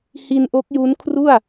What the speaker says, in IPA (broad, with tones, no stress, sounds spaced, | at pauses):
h i˧ n ʔ o˦˥ k̚ j u˦˥ n kʰ r u˥˩ a̯